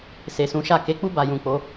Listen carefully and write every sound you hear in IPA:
s e˨ s ũ˨˦ ʃ a˦˨ k e˨˦ k͡p u˦ b a˧ j ũ˨ k͡p o˨˦

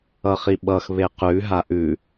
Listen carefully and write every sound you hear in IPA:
ʌ χ i ɓ ʌ x β e q ʉ ɦ a ʔ ʉ

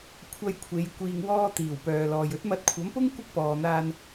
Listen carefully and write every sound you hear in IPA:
kʷʰ ɐ˧ j kʷʰ e˨˧ j kʷ iː˧ ŋ w ɔː˧ t̪ iː˨˩ w p œː˨ l ɔː˨ j ɵ˨˥ t̚ m ɐ˧ t̚ kʷʰ ɐ˨˥ m p ʊ˥ ŋ kʷ ɪ˥ k̚ p ɔː˨ n̪ aː˧ n

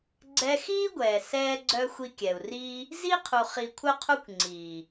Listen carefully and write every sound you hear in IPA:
ɡ͡ǀ ɛ˧ x iː˦ ɡʷ ɛː˨ s ɛː˦ ɡ͡ǀ œ˦ xʷ i˧ kʲ ɛ˨ u̯ r iː˦ | z i˦ qʰ u˨ χ i˨ kʷʰ œ˦ qʰ u˦ kʷ ŋ͡ǀ iː˨

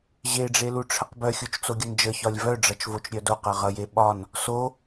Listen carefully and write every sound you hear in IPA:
ʑ e ɖ͡ʐ e l u ʈ͡ʂʰ ə q b œ xʲ o t͡ʃ t͡s o ɡʲ ʌ n d͡ʒ ə ç ɒ lʲ v œ ɖ͡ʐ ʌ t͡ʃ v o t͡ʃ ɾʲ œ d o q ʌ ʁ ʌ j e ɓ ɒ n | s o

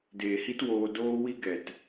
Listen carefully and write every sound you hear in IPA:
d eː˨ h i˦ t w oː˧ d oː˦ w i˦ ɡ ɛ˨ t

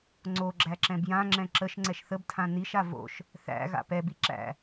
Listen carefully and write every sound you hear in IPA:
ŋ͡ǀ o ɡ͡ǁ æ ǁ ɛ̃ b j ã ŋ͡ǁ ɛ̃ ǁ ə ʃ ŋ͡ǀ ɛ ʃ θ ə b tʰ ã n i ʃ a v o̰ ʃ | θ æ̰ ɣ a̰ p ɛ b i ǁ æ̰

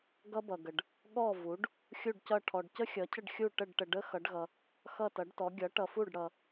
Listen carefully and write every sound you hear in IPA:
ɡ ʌ˥ b ʌ˨ ɡ ə˨ ɖ | ɠ ɔ˥˩ v u˩˥ ɖ | xʲ u˥˩ ɖ c ʌ˥˩ ʈʰ ɔ˨ ɖ c ə˥ xʲ ʌ˩˥ cʰ ə˥˩ ɖ xʲ u˥˩ ʈ ə˥˩ ɖ ʈ ə˨ ɖ ə˥ x ʌ˩˥ ɖ ɣ ʌ˨ | x ʌ˥˩ t ʌ˩˥ ɖ t ɔ˩˥ ɡʲ ʌ˩˥ ʈ ʌ˨ f u˥˩ ɖ ɽ ʌ˨

